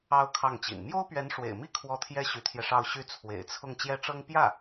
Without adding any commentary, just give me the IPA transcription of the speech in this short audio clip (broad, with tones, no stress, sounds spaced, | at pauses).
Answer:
ɑ˥ ʊ̯ kʰ ɑ˥˩ ŋ t͡ɕ ḭ˨˩ n m j o˥ ʊ̯ p ɥ ɛ˧˥ n ʂ w ḛ˨˩ ɪ̯ m i˥˧ kʰ w ɔ˥˩ t̪ʰ j ɛ˥ ɕ y˧˥ t̪ʰ j ɛ˧ ʂ ɑ˥˧ ʊ̯ ɕ y˥˩ t͡sʰ w ḛ˨˩ ɪ̯ t͡sʰ ʊ˥˩ ŋ t͡ɕ j ɛ˥ ʈ͡ʂ ɤ˥ ŋ p j ä˥˩